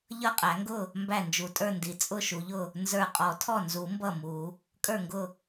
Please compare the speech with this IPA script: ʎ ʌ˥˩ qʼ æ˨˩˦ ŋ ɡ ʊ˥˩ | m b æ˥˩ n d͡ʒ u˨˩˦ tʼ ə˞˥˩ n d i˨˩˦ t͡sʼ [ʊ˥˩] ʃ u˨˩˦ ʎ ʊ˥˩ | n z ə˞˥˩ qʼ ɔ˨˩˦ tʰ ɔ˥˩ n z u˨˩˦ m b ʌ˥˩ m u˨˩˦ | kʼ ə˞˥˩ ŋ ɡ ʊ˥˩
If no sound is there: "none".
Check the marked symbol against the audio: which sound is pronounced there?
ʊ˥˩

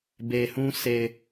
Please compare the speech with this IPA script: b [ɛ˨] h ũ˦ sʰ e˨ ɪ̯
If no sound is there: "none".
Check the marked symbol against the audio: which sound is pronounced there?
e˨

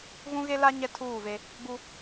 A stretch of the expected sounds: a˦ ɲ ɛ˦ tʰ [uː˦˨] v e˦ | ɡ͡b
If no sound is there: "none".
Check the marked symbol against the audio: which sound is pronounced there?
uː˦˨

